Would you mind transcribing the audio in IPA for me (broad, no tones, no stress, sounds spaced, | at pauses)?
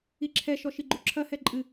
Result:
i ǁʰ ɛ ʃ ɔ ʃ i ɡ͡ǃ u ǁʰ ɐ h ɛ ǃʼ ɨ